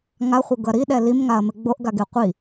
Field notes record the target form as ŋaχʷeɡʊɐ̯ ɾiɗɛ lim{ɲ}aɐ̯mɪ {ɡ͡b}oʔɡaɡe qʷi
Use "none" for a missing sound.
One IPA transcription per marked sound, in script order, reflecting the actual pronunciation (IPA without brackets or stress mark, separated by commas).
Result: ŋ, ɡ͡b